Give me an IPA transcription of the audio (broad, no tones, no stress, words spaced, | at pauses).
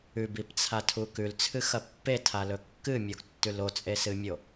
ʉbipt͡sʰatʰu kʉlt͡sʰɨxɐ pːetʰalɵ kːɨmʲoɡtːʉl ot͡sʼesɨmʲo